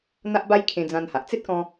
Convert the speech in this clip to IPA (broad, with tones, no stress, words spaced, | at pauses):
n̪a˦ʔba˦j kʰẽ˧d͡zã˧nha˨ʔ t͡se˦t̚kɔ̃˧